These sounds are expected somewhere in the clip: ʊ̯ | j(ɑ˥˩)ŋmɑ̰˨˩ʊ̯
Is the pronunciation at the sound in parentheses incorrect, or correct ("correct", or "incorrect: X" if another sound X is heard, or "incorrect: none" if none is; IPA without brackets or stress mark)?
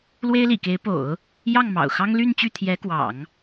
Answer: correct